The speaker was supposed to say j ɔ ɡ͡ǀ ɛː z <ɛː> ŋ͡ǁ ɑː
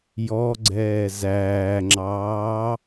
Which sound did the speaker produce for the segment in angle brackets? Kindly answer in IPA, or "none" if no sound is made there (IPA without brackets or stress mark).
æː